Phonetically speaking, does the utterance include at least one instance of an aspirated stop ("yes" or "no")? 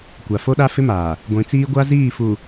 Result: no